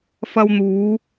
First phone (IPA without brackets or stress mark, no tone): f